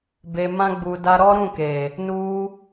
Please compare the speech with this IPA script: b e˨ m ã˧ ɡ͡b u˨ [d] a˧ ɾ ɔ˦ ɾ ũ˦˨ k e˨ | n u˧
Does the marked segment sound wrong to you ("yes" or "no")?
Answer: no